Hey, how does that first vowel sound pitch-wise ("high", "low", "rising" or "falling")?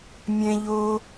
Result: low